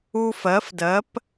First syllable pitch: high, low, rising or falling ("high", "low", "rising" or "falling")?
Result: high